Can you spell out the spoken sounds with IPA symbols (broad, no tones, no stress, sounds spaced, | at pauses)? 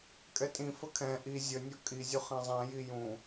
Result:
kʼ ɛ tʼ ĩ f ə kʰ ɛ̃ ʔ i zʲ ə nʲ ɔ kʼ i zʲ u χ ɛ̃ zˤ ɛ̃ j i j ũ